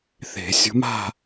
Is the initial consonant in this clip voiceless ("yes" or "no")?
yes